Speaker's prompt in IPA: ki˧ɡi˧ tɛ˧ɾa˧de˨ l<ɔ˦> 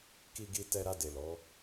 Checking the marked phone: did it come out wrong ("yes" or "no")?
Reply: yes